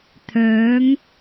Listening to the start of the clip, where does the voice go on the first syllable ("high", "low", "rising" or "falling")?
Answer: rising